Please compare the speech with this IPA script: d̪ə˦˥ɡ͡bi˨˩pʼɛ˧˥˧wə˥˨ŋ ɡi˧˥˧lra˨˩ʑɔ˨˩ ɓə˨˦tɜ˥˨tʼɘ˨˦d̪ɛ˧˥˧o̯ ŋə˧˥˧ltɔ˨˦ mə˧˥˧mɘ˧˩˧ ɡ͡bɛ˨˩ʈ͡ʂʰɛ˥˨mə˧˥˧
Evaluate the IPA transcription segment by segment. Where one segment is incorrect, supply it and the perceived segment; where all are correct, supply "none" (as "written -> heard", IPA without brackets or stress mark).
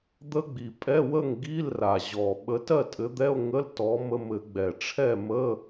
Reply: none